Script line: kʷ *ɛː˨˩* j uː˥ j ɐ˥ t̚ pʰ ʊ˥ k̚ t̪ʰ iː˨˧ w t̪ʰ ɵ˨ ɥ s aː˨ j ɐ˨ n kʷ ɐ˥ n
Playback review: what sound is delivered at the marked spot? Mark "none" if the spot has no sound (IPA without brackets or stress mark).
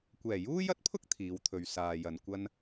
ɛː˨˩